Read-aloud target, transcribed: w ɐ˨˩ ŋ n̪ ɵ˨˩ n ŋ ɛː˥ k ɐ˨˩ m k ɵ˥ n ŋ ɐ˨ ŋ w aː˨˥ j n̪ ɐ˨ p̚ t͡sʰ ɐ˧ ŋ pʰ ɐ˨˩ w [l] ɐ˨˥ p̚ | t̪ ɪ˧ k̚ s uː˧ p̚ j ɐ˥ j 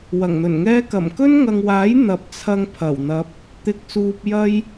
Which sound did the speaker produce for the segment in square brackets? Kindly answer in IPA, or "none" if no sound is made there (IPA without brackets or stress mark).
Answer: n̪